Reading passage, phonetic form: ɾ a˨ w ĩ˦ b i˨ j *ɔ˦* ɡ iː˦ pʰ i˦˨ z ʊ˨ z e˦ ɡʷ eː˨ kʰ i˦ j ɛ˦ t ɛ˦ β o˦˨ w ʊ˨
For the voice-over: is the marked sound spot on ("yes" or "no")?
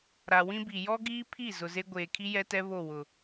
yes